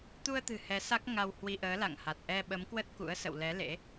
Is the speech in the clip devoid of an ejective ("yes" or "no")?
yes